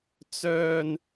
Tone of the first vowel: high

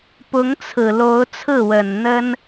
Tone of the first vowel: rising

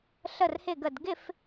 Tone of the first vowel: falling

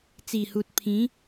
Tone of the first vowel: low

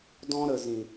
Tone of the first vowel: high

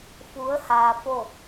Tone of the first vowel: rising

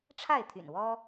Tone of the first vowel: falling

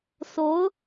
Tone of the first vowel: rising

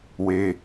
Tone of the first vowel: high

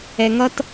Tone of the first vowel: low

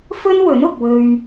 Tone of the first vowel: high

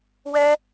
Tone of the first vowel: high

